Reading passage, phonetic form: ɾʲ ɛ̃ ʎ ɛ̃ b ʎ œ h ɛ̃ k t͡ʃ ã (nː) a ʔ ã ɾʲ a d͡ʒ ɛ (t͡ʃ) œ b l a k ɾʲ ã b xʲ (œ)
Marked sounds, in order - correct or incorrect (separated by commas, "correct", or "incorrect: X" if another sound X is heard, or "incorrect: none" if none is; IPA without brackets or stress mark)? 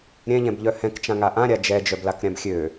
incorrect: ŋ, incorrect: d͡ʒ, incorrect: ø